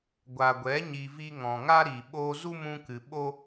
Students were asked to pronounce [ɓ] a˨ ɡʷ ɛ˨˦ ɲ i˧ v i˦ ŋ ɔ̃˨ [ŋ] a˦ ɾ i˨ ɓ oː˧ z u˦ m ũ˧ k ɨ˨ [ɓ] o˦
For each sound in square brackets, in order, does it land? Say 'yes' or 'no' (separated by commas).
no, yes, yes